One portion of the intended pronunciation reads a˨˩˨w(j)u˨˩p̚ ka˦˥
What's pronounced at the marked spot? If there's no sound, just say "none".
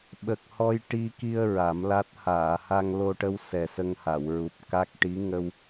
ɹ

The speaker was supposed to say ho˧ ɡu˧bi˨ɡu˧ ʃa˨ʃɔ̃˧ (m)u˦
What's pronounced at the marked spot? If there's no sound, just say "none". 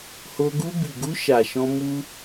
m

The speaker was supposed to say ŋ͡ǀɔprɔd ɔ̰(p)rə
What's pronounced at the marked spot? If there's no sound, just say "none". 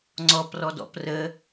p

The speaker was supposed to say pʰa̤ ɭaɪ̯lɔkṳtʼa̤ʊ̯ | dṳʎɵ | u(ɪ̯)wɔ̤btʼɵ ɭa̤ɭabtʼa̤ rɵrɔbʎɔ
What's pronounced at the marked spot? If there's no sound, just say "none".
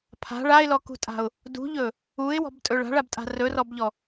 ɪ̯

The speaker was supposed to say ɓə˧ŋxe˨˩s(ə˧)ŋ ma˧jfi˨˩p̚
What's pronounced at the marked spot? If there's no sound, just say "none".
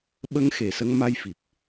ə˧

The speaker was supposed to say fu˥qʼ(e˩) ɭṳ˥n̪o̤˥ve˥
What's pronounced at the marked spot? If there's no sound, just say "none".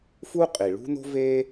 i˩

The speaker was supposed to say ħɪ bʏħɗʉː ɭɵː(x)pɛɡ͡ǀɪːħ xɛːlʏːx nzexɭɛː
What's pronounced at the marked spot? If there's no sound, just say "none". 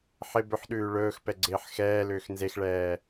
x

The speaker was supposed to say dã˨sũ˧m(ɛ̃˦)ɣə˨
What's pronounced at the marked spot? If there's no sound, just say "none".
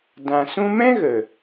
ɛ̃˦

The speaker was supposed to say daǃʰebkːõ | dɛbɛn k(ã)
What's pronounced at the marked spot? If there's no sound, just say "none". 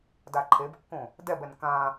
ã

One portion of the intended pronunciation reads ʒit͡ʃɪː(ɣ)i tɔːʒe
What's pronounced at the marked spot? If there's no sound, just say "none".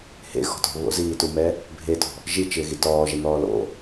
ɣ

